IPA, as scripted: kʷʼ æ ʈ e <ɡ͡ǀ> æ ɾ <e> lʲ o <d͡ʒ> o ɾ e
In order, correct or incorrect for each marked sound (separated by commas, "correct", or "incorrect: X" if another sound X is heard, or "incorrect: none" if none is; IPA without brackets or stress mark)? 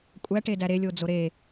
incorrect: d, correct, incorrect: d͡z